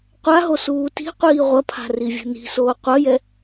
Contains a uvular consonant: yes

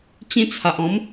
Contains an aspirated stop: yes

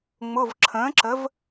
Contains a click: yes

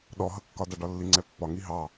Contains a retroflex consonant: yes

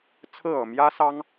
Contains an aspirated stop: yes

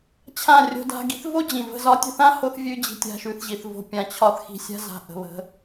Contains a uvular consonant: no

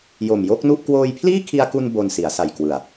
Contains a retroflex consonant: no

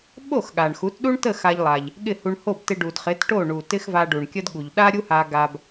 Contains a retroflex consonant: yes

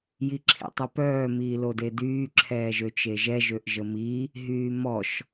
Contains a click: yes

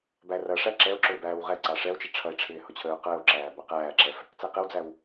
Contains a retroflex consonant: yes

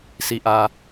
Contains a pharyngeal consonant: no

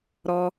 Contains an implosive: no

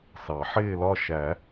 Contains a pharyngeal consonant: yes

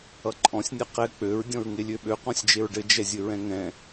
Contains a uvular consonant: yes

